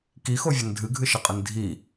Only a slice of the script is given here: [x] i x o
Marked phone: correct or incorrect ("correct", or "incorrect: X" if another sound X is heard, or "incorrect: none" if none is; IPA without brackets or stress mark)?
incorrect: k